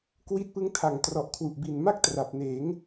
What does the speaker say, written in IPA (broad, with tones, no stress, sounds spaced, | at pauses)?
k w i˦˥ t̚ p ɯ˦˥ ŋ tʰ a˨˩ ŋ t r ɔ˨˩ ʔ kʰ w u˨˩ ʔ b i˨˩ n m a˥˩ k̚ t r a˨˩ p̚ n eː˩˦ ŋ